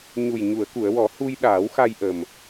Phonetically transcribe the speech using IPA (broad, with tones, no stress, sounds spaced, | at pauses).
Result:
ɲ u˨˩ j ɲ u˨˩˨ ə̯ k u˨˩˨ ə̯ w ɔ˨˩˦ h u˧ j ɗ aː˨˩˦ w x a˧ j ʔ ə˨˩ m